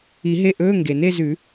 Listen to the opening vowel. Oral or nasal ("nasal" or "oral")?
oral